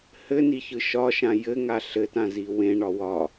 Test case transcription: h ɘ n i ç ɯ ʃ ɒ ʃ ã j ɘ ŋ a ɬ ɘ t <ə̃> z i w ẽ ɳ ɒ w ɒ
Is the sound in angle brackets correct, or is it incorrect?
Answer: incorrect